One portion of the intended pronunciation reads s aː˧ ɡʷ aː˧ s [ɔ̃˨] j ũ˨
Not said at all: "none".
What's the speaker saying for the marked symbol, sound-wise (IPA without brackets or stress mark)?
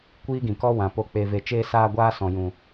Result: ɔ̃˨